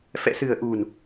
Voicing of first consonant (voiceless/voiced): voiceless